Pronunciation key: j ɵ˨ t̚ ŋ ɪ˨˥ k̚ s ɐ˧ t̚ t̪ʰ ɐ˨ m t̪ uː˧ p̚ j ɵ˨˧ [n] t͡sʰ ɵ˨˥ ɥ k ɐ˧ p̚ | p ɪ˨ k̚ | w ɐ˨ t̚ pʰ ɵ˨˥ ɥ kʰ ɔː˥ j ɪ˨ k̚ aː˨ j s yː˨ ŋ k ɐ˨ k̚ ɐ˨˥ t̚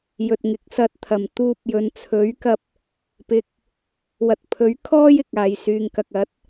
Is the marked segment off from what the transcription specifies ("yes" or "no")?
no